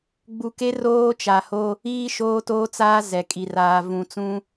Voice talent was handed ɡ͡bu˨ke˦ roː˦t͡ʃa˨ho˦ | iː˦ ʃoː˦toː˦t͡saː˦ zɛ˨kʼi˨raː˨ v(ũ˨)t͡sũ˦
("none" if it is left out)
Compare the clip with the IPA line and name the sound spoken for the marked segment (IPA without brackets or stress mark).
ũ˨